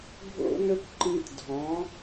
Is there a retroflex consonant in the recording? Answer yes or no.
no